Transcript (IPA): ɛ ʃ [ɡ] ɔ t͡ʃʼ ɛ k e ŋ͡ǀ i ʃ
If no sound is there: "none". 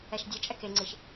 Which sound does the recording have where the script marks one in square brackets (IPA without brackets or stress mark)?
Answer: dʲ